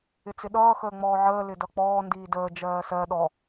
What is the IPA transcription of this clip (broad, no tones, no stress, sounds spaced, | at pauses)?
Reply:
ɪ t͡s ɪ ɗ ʌː x əː ŋ͡m ɔː ʕ əː l ɪ d ʌ k͡p ɔː n d iː d əː d͡ʒ ɜː s ɜ ɗ ɔ